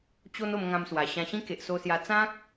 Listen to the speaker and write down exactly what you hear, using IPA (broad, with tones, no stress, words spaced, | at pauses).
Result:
t͡ɕo˦n o˧mŋã˧mswa˨˩ ɕã˧ɕĩ˦ ke˨ʔso˧sja˧ t͡sã˦k̚